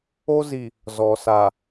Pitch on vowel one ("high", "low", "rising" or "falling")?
high